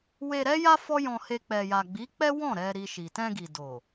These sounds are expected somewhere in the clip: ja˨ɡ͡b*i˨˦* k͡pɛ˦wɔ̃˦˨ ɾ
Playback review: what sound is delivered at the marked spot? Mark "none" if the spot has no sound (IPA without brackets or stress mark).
i˨˦